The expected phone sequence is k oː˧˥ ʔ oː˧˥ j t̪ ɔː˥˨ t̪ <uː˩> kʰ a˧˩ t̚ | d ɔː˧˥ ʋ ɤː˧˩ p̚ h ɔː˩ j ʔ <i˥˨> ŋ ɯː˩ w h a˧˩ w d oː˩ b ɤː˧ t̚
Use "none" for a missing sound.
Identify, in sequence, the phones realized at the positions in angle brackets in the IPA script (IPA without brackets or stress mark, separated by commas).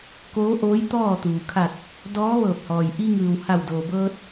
uː˩, i˧